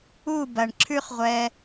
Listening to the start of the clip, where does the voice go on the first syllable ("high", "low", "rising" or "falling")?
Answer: falling